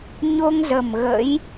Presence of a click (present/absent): absent